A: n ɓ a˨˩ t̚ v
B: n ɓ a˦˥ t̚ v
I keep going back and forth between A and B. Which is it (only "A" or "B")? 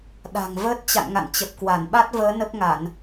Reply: B